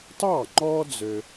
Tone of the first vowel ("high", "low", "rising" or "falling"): falling